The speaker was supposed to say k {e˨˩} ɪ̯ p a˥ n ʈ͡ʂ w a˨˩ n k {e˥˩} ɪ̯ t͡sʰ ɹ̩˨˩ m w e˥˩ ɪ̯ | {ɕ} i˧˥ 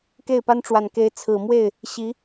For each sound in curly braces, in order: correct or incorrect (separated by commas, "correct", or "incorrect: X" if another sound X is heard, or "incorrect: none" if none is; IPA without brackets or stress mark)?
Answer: incorrect: e˥˩, incorrect: e˧˥, correct